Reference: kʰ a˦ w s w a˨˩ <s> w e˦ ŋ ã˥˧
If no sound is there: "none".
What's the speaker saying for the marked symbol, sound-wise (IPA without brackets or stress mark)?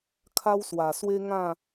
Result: s